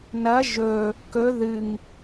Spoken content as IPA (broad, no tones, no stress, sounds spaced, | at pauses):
n ɐ ʒ ɵ | k ɵ ð ɨ ŋ